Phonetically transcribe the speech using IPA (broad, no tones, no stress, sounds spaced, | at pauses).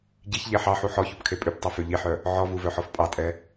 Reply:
ɟ i ç ʎ e ħ ɑ ħ u ħ ɔ ç u p kʰ e pʼ ʉ p tˤ ɛ f ø ʎ i ħ œ | ʕ ɔ v u v œ ħ ɔ f pʼ ɑ tʼ ɛ